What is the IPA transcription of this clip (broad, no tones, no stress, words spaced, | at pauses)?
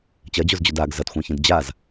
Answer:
t͡ɕɐd͡ʑozd͡ʑod aɡ zɐtxʷãçĩd d͡ʑaz